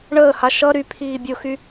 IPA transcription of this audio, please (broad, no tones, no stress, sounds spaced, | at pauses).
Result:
ɳ əː h a ʃ ʌ ɾ y pʰ iː bʲ ʊ x y